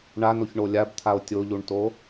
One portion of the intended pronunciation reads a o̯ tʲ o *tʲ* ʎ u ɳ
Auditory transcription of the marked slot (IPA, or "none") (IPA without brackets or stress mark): none